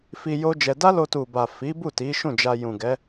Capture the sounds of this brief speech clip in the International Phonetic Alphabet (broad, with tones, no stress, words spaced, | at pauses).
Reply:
fi˧ jo˦d͡ʒɛ˧ da˦lo˧tu˨ba˨ fi˨˦bu˦˨ ti˨˦ʃũ˦˨d͡ʒa˧ jũ˨ɡɛ˨˦